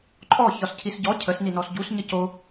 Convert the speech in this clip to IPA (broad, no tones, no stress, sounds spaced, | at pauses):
ǃʼ ɔ ç ɒ s cʰ i s ɟ ɔ cʰ ə s n i n ɔ s ɟ u s ɲ ə c o